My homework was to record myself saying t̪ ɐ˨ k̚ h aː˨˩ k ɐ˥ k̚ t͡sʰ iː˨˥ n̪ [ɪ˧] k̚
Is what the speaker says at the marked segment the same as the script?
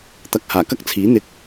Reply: no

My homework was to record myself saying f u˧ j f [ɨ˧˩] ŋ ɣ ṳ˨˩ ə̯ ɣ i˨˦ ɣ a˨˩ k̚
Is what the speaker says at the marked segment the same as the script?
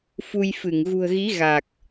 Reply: yes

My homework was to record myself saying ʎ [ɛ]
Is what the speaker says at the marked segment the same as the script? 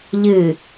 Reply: no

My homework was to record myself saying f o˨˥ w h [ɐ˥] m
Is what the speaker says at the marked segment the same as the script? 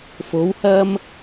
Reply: yes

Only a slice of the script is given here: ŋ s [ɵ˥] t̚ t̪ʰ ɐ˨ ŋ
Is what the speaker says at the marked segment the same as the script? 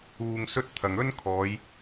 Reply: yes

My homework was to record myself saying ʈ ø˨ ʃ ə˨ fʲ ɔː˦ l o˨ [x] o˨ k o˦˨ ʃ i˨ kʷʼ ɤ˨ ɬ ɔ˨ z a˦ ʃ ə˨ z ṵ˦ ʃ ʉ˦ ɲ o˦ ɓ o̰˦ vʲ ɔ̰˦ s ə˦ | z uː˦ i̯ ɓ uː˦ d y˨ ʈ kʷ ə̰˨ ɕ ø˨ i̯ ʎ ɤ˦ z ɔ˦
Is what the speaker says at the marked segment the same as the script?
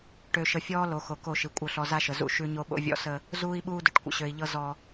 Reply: yes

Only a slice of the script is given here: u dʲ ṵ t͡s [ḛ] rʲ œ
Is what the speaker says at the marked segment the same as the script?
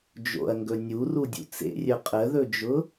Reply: yes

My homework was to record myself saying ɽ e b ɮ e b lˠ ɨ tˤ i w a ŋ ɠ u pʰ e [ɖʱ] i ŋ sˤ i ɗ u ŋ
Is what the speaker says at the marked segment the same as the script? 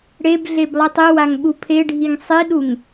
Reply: yes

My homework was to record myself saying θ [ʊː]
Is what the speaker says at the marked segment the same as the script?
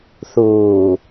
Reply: no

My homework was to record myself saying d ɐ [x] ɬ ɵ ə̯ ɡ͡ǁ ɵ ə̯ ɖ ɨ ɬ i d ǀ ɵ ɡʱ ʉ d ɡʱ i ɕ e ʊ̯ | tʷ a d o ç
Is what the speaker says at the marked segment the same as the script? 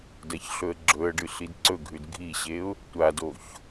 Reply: no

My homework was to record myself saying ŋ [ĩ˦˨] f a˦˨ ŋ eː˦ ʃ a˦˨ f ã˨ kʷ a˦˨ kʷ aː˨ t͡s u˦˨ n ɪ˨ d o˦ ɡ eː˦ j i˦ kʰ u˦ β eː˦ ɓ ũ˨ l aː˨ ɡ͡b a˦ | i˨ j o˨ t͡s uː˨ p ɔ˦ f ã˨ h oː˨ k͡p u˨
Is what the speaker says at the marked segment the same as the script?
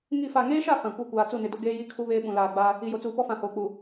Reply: no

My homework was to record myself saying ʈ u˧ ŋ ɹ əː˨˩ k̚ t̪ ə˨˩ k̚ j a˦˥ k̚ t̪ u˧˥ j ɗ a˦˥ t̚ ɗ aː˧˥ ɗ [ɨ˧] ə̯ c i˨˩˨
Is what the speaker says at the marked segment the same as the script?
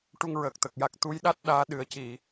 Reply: no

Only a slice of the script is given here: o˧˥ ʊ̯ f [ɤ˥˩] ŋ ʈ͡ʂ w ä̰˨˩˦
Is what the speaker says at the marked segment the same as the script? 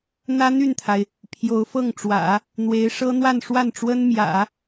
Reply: yes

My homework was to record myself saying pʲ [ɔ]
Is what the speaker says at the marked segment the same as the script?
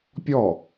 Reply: yes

